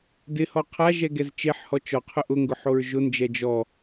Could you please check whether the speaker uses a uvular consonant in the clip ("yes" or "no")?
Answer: yes